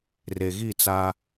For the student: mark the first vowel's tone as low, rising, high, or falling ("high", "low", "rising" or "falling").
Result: low